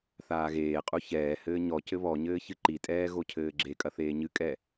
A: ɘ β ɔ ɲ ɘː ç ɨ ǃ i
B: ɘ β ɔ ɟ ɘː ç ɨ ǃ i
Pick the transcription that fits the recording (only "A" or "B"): A